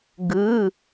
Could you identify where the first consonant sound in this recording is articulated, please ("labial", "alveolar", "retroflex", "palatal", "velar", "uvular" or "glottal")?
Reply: velar